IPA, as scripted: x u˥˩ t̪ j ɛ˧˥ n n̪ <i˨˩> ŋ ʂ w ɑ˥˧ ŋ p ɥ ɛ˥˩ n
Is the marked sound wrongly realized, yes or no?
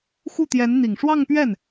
no